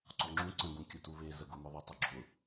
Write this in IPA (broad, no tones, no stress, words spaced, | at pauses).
ǀɔŋ͡ǁũ ǀə̃ ɡũkʲətuβe zəɡʊmʊðˤə tˤʏɡ͡ǁʊ